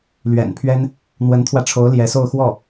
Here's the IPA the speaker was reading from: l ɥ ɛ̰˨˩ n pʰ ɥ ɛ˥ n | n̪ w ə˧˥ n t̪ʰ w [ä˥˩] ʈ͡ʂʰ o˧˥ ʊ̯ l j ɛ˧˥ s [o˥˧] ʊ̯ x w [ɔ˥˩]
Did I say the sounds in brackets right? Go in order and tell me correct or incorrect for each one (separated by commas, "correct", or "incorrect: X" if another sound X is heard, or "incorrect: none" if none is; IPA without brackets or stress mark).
incorrect: ä˧, correct, correct